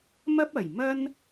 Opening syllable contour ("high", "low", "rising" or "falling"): high